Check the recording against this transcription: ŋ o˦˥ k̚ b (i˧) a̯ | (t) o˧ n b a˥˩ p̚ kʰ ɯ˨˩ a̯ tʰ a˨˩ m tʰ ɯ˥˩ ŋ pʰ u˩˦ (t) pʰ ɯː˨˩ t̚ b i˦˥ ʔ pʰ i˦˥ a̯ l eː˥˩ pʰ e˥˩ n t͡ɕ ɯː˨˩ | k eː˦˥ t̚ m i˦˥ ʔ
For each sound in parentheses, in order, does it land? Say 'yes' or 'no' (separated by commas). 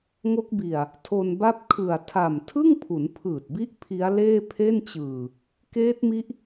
no, no, no